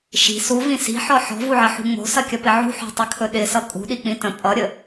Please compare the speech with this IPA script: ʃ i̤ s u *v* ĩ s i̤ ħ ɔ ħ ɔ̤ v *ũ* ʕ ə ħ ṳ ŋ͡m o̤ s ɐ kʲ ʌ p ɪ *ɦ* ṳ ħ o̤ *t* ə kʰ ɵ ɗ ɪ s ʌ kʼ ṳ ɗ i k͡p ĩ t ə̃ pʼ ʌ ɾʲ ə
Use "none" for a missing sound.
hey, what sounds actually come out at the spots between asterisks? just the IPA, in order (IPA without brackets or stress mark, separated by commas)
v, u, ʕ, tˤ